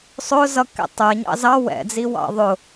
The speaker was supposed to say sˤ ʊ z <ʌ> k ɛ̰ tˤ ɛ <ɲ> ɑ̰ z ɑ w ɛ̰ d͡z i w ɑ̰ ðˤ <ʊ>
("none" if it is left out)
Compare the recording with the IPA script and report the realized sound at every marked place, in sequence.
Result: ʌ, ɲ, ʊ

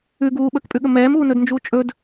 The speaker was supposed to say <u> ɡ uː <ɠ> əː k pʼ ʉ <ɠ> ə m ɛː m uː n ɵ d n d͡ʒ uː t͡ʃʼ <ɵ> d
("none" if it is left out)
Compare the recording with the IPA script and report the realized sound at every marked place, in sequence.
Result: ʉ, ɓ, ɠ, ɵ

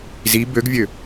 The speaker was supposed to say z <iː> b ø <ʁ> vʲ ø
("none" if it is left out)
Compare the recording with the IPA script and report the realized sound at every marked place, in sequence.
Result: i, ɡ

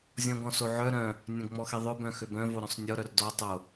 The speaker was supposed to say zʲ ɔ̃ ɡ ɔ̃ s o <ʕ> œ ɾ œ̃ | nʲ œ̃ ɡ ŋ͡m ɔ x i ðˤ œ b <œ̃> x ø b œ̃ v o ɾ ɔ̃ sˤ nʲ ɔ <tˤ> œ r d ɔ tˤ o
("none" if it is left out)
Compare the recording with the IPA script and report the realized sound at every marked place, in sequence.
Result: ʕ, œ̃, ɾ

